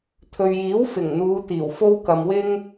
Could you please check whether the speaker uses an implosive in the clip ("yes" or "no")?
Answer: no